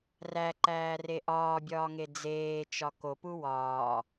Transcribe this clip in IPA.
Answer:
r æ ǃ æː r e ʔ ɒː bʲ ɒː ŋ e d͡z eː t͡ʃ ɒ k o p u w ɒː

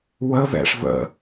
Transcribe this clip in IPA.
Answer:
w ə v ɛ̰ ʂ v ə̰

